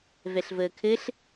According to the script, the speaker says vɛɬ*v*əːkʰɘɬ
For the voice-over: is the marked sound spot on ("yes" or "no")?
yes